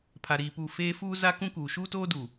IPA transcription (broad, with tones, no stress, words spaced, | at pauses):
pʰa˨ɾiː˨puː˨ feː˦ fuː˦za˦ kũ˦kuː˨ ʃuː˦toː˦ duː˨